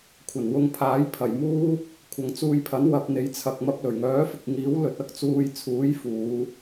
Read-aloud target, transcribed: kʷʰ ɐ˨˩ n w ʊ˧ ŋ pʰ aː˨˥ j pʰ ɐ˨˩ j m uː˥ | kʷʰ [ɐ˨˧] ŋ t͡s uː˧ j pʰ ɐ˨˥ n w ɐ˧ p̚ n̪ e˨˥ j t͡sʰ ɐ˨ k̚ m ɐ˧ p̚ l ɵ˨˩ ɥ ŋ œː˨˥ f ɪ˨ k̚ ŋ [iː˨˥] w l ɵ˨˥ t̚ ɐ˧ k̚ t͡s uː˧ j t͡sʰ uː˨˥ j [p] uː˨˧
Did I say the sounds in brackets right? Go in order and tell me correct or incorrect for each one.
correct, correct, incorrect

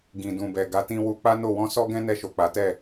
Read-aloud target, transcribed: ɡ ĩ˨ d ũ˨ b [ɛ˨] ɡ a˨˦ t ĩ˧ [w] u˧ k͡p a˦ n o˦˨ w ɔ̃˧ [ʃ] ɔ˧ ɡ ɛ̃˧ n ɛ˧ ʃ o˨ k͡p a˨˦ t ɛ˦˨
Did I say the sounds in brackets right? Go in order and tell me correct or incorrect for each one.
correct, correct, incorrect

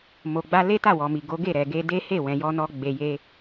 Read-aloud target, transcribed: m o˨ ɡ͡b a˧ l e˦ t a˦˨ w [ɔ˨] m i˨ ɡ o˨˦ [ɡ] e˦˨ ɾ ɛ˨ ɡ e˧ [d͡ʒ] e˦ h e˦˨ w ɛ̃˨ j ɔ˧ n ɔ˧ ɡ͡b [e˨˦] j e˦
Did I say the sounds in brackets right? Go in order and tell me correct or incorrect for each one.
correct, correct, incorrect, incorrect

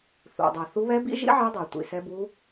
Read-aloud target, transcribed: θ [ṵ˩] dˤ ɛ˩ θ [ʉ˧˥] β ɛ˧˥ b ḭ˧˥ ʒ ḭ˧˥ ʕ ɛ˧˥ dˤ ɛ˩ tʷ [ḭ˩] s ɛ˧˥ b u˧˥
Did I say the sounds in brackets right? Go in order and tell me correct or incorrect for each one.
correct, incorrect, correct

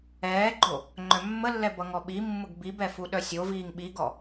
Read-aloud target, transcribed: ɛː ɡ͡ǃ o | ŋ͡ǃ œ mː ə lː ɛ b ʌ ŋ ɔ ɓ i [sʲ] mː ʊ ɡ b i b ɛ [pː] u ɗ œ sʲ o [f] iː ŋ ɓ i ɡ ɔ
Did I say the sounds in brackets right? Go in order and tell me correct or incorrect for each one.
incorrect, incorrect, incorrect

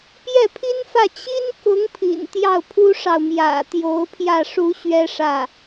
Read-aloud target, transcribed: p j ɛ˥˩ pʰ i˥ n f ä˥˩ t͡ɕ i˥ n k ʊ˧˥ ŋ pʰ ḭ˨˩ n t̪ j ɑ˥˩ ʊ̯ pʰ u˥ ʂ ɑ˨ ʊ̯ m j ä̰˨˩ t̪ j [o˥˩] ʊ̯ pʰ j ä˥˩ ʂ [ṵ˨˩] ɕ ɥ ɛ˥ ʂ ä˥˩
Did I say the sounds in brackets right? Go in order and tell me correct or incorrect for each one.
incorrect, incorrect

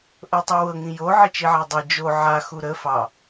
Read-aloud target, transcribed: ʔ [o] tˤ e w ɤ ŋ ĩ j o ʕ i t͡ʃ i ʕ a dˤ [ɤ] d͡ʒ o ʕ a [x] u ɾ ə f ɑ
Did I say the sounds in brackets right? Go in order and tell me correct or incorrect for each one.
incorrect, correct, correct

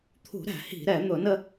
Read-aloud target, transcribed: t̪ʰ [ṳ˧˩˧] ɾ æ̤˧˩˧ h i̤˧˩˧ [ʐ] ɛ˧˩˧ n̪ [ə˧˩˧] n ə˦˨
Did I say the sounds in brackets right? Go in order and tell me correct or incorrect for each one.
correct, incorrect, incorrect

